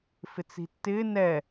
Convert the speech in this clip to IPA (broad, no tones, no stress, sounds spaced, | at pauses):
f ɪ t͡s i̤ tː ɪː n ɛ